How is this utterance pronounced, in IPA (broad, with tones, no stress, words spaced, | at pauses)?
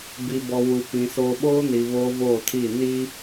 bi˨bɔ˨wu˨ pĩ˨ soː˨ɓoː˦ni˨ βoː˦voː˦˨tʰiː˦˨niː˦